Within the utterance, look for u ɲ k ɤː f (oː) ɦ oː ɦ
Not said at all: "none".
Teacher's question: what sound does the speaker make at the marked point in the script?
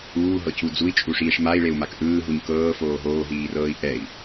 oː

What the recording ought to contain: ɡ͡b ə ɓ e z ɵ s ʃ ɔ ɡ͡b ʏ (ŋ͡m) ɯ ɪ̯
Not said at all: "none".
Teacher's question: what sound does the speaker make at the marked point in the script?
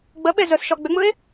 ŋ͡m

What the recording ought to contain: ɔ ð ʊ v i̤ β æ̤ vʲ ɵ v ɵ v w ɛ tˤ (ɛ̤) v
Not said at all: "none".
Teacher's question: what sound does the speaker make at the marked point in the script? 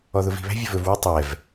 ɛ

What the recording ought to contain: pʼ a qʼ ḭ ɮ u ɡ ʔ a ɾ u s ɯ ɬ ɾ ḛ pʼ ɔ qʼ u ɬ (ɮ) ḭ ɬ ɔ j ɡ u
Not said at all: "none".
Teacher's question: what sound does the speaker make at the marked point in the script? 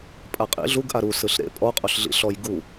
ɮ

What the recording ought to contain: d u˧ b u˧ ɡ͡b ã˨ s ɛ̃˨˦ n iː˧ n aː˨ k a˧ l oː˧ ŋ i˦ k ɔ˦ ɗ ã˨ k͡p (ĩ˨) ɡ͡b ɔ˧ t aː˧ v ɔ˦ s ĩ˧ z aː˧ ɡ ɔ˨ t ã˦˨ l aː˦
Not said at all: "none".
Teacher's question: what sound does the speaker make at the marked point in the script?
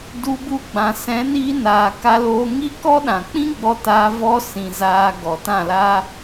ĩ˦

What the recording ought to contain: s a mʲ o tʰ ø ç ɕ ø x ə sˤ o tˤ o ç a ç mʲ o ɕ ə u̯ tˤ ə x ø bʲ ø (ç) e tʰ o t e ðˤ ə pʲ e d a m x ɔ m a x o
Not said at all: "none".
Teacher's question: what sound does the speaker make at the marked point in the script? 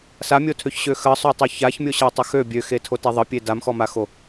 x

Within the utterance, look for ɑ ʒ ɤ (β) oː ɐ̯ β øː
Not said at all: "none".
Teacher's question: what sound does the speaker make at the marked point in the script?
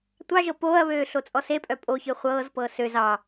p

